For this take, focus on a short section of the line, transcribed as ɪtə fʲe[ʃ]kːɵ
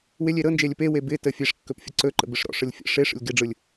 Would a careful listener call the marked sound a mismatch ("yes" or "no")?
yes